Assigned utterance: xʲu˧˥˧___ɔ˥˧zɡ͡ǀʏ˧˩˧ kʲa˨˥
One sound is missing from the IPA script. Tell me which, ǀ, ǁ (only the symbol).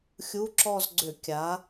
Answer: ǁ